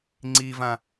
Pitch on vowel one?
low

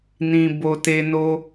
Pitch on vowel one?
low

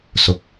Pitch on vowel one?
low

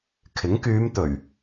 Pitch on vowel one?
rising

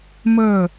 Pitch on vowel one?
falling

